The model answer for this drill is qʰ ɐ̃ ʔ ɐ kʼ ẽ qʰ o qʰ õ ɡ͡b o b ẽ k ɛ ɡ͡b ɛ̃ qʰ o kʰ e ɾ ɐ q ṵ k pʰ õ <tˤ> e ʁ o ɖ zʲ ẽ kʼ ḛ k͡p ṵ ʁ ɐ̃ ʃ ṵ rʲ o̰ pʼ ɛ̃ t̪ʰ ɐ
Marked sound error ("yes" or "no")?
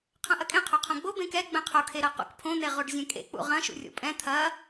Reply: yes